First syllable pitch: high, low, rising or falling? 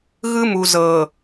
high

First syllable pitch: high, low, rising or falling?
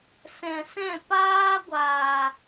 low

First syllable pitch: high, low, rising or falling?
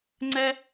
high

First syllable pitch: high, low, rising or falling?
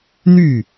falling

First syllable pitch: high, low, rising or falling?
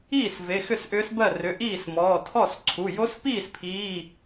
falling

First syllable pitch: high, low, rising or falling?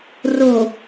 low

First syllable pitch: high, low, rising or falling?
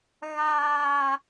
low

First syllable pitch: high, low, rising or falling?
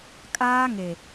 high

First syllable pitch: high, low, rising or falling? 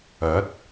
rising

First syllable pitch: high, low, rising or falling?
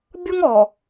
high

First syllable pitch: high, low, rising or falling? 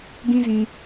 high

